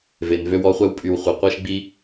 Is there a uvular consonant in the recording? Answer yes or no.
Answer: yes